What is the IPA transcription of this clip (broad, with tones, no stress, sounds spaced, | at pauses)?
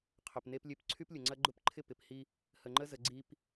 qʰ œ˨ p n e˦ p lʲ ø˦ p ǀʰ y˦ p lʲ ʊ˨ ŋ͡ǀ ɐ˦ ɡ͡ǃ ʊ˦ p ǃʰ ɪ˦ p ɪ˨ p h i˦ | h ə˨ ŋ͡ǃ ə˦ z ə˨ ɡ͡ǀ i˨ p